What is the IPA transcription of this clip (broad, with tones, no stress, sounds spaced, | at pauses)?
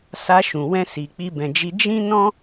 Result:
s a˧ ʃ ũ˨ w ɛ̃˧ s i˨ k͡p i˧ b ɛ̃˨ d͡ʒ i˧ d͡ʒ ĩ˦ n ɔ̃˦